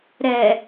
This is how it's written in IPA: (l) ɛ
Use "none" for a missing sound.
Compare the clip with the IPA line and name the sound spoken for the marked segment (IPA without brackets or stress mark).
ɾ